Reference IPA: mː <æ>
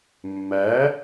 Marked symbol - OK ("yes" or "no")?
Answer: yes